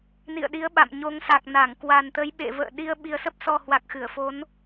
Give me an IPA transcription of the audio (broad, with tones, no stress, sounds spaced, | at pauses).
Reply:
n ḭ˧˨ ə̯ ɗ i˨˦ ə̯ ɓ a̰˧˨ m ɲ o˨˦ ŋ s a˨˩ k̚ n a˧˩ ŋ k w a˨˩ n t̪ ə˨˦ j ɓ ḛ˧˨ v ə̰ː˧˨ ɗ i˧ ə̯ ɓ i˨˩ ə̯ s ə˦˥ p̚ s ɔ˨˩ h w a˨˩ k̚ x ɨ˧˩ ə̯ f o˨˦ n